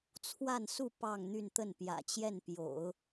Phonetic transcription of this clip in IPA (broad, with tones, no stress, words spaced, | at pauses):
t͡sʰwa˥˧nsu˥˧ pɑ˥˧ŋn̪y˥˧nt̪ə˥˩n pjä̰˨˩t͡ɕjɛ˥˩npjo̰˨˩˦ʊ̯